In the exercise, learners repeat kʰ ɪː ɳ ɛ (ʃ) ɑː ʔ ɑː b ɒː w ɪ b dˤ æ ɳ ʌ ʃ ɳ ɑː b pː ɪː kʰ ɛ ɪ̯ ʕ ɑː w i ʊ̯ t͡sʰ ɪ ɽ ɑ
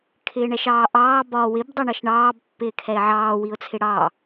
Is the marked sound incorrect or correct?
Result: correct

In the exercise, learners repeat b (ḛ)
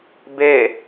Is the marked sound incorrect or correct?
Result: incorrect: e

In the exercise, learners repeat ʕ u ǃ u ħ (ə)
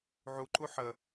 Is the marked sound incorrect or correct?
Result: correct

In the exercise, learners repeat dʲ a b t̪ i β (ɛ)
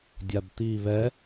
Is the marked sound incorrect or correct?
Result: correct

